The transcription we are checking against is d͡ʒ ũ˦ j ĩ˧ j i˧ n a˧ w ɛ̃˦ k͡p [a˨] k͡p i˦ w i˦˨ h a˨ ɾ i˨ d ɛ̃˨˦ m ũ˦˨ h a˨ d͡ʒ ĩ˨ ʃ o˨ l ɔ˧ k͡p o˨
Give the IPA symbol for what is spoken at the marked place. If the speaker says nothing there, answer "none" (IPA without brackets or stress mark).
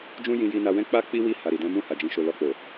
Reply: a˦